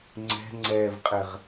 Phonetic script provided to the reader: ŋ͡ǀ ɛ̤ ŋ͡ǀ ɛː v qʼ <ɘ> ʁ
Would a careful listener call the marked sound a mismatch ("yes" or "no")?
no